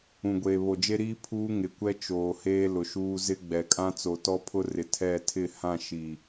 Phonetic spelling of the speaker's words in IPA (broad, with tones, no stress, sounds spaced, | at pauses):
ũ˨ ɡʷ eː˨ β o˨ d͡ʒ e˦ ɾ iː˦ pʰ uː˦ ŋ ɪ˨ kʷ ɛ˦ t͡ʃ oː˨ h eː˦ l ʊ˨ ʃ uː˦ z ɪ˦ ɡ͡b ɛ˨ kʼ ã˦ t͡s o˨ t ɔ˦ pʰ ʊ˦ r ɪ˨ tʰ ɛ˦˨ tʰ ɪ˦˨ h ã˦˨ ʃ i˨